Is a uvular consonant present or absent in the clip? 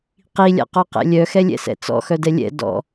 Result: present